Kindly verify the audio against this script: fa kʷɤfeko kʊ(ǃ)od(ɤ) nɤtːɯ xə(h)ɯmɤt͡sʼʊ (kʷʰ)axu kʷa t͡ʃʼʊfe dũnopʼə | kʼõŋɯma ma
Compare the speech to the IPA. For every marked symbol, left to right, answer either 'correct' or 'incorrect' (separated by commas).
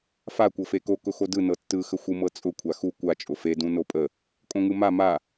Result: incorrect, incorrect, incorrect, correct